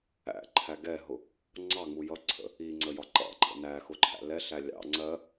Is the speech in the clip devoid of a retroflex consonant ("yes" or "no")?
yes